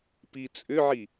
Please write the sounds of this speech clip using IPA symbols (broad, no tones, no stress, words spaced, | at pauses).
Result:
pit͡sʼʏʕi